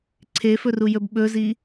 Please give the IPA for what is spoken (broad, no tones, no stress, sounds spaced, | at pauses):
ǀʰ e f ɵ r u j ɵ b ɓ ɵ z i